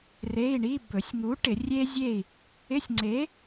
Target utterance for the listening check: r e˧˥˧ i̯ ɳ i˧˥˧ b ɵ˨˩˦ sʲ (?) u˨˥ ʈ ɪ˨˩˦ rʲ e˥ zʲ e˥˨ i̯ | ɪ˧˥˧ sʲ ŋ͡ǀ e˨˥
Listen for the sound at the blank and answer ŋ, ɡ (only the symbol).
ŋ